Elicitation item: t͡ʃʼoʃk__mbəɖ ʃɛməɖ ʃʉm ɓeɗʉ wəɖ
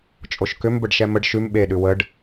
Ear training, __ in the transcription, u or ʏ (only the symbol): ʏ